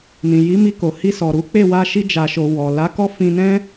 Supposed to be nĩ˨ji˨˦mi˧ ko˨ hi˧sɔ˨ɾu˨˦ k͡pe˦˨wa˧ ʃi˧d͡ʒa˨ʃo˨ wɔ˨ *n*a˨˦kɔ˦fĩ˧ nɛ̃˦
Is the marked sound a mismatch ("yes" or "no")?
yes